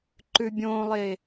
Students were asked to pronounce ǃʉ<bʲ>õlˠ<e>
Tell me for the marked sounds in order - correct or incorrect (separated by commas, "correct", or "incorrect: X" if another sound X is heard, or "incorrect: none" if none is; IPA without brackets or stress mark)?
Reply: correct, correct